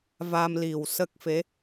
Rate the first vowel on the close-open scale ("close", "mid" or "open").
open